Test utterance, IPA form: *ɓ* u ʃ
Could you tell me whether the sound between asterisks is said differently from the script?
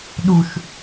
yes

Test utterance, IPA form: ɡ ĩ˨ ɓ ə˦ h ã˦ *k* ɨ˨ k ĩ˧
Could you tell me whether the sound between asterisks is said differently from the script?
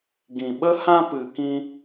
yes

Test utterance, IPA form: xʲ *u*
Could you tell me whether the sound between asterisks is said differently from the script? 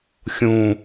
yes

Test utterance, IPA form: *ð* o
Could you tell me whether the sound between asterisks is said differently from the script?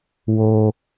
yes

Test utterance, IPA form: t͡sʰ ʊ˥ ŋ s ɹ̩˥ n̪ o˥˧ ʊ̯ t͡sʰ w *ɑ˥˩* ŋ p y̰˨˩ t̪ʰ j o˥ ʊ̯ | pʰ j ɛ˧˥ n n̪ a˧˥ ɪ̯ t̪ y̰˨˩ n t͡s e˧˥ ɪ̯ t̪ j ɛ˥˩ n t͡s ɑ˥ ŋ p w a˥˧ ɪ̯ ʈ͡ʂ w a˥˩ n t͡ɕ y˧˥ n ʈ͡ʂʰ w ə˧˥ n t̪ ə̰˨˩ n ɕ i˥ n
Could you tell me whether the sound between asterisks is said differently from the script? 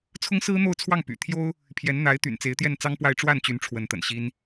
no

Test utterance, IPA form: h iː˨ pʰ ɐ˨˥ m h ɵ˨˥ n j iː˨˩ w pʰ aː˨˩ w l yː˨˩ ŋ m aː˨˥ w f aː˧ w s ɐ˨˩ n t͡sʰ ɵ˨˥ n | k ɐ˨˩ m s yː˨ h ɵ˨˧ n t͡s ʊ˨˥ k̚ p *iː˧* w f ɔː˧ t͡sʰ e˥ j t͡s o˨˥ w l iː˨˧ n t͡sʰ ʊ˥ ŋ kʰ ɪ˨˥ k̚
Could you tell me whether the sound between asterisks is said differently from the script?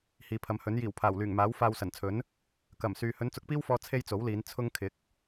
yes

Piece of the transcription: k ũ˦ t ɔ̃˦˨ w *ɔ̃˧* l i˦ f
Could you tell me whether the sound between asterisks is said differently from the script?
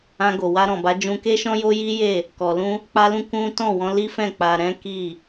no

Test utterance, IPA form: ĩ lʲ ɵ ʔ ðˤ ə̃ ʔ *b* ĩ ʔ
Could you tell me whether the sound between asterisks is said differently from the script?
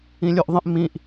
yes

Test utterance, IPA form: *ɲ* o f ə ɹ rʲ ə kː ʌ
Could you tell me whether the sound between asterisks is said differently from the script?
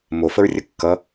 yes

